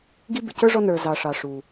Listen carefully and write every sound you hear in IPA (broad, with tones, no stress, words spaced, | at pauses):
ɡi˥ bɪ˨cə˞˥ʐɔ˦ nə˞˨ zɑ˨ ʂɑ˩ ʂu˩